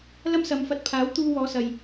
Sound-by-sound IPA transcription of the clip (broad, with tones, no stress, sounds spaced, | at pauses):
l ɐ˥ m s ɐ˨˧ m f ɐ˧ t̚ pʰ aː˨˥ w t̪ uː˧ w ɔː˨˧ s ɐ˨ j